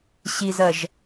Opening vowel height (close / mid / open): close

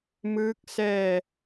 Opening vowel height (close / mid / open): close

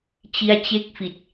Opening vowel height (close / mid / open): close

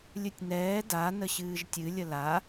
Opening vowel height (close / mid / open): close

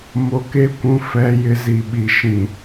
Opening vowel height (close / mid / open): mid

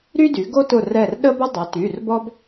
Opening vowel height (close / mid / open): close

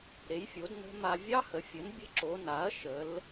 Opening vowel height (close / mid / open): mid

